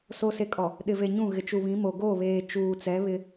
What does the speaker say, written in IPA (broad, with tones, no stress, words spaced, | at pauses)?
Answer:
so˨se˨kʼɔ˨ | ɗɪ˨ve˨ɲũ˦˨ ɣɪ˨t͡ʃu˨βĩ˨˦mo˨ ɡo˦˨βeː˨ t͡ʃuː˨t͡sɛ˨˦βɪ˦